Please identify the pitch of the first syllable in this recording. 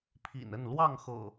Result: low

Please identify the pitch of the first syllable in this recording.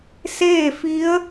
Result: falling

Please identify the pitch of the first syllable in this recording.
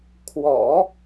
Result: low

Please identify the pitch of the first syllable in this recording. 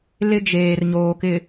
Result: high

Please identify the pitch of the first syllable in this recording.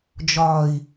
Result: low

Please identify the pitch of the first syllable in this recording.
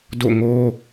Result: falling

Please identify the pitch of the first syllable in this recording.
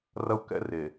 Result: high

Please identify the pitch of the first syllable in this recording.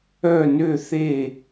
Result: falling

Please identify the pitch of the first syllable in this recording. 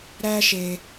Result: high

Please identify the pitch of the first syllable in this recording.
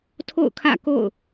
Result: falling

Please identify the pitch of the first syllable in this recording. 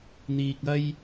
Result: low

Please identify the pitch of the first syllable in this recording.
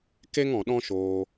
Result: high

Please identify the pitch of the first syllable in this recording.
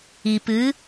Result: low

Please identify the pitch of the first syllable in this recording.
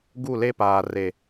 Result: falling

